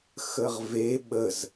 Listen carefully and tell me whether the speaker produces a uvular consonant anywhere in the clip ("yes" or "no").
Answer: yes